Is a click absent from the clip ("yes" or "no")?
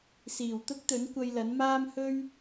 yes